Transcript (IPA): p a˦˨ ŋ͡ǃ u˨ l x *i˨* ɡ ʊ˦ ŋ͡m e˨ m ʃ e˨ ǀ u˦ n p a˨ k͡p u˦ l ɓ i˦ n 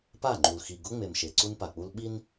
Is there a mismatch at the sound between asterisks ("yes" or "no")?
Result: no